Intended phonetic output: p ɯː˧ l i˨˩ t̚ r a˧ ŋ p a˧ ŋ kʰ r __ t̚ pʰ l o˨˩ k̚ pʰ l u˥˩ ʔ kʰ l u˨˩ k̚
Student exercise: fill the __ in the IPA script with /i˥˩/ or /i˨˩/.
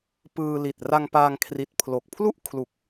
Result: i˨˩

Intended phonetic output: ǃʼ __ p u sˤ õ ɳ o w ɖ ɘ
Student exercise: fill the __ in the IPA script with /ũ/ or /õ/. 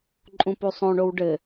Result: ũ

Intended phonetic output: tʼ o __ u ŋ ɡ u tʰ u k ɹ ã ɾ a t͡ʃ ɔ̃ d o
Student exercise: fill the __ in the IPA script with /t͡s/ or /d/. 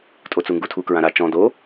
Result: t͡s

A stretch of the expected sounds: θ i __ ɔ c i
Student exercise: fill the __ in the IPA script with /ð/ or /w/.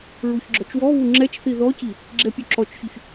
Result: ð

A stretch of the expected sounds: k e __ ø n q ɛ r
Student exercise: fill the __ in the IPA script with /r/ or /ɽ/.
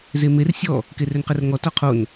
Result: r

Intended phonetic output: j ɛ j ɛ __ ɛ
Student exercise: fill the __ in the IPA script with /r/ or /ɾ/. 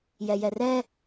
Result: r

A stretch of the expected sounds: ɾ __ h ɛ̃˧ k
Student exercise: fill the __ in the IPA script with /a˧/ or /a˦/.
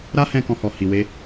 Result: a˦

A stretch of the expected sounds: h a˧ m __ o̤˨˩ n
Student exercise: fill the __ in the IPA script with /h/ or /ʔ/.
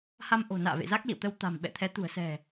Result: ʔ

